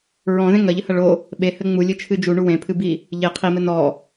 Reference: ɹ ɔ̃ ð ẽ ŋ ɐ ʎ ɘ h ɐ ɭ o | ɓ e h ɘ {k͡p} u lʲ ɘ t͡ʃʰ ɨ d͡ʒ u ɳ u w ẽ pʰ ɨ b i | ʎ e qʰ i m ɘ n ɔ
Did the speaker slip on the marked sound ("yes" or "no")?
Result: yes